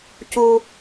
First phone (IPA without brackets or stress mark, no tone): c